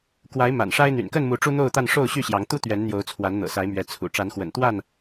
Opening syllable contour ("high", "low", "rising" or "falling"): rising